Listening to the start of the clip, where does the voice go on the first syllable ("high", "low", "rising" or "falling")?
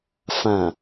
low